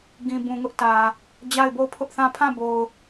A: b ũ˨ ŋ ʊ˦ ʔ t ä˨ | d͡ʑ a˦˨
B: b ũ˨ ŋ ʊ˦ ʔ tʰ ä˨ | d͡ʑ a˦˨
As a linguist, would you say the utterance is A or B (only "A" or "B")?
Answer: A